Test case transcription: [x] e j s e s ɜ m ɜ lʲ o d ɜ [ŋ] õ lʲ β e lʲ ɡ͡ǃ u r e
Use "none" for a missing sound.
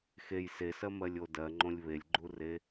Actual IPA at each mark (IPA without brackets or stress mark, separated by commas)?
x, ŋ͡ǃ